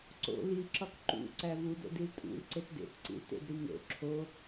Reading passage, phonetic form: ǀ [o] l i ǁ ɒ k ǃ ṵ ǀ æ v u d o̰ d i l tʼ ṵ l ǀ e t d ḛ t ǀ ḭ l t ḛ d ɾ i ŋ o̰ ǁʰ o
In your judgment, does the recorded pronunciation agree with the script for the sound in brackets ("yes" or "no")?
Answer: no